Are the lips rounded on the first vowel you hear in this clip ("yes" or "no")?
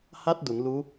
no